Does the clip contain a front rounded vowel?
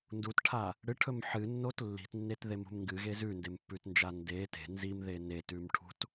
no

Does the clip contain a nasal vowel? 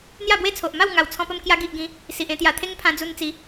yes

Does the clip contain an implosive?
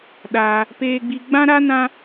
yes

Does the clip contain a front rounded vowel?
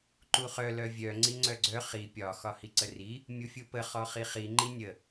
yes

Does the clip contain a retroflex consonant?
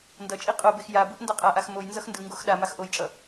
no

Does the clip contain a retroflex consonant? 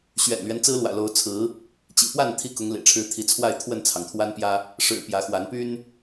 yes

